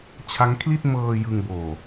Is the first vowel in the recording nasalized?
no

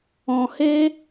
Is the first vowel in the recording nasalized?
yes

